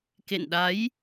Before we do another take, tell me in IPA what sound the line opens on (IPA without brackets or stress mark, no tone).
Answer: k